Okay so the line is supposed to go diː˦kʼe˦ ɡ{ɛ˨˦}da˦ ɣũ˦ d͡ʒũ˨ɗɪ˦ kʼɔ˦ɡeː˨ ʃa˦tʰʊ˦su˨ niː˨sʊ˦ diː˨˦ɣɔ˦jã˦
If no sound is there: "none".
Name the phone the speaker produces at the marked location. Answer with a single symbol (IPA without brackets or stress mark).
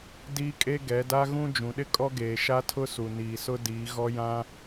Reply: ɛ˨˦